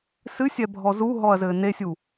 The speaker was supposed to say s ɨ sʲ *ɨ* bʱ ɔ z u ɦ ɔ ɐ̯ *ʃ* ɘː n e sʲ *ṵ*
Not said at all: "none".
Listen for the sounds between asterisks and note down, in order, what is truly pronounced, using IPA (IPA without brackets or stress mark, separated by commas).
ɛ, z, u